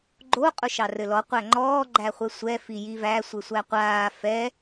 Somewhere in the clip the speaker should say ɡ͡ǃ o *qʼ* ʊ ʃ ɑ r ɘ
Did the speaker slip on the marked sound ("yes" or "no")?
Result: no